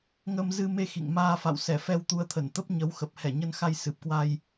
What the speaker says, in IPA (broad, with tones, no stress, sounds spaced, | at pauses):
ŋ ə˧ m z ɨ˧ m e˧ x ḭ˧˨ ŋ m aː˧ f a̰˧˨ w s ɛ˧˩ f ɛ˧ w t̪ u˧ ə̯ t̪ʰ ə˧˩ n t̪ ə˦˥ p̚ ɲ ə˨˦ w x ə˨˩ p̚ h ɛ˧˩ ɲ ə˧ n x a˧ j s ɨ˨˩ p̚ k w a˧ j